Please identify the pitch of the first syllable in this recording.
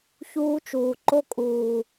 high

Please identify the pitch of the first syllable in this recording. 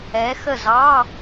rising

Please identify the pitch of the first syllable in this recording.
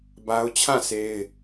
high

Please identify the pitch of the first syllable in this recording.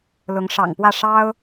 rising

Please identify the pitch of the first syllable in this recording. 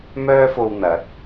high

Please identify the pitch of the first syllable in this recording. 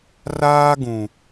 high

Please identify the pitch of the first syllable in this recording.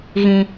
low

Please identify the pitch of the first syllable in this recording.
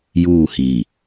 falling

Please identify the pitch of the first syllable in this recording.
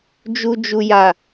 low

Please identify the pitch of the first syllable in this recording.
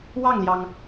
falling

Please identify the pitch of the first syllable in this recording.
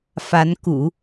rising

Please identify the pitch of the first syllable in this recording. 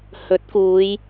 rising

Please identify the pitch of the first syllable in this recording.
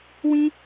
high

